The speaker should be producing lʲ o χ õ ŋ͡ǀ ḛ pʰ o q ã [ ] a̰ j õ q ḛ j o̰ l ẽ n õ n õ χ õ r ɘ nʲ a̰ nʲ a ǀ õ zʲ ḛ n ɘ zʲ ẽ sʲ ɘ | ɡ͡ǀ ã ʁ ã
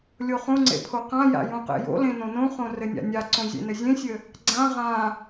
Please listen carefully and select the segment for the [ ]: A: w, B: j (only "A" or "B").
B